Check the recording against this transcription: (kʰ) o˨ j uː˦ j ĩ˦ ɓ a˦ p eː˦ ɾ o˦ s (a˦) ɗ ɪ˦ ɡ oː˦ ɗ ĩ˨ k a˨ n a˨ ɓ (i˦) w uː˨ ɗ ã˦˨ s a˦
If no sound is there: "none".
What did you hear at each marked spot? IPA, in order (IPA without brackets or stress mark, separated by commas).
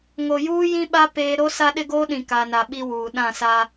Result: ŋ, a˦, i˦